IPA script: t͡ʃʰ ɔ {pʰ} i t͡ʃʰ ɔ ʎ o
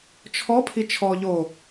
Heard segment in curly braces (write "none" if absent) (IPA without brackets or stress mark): pʰ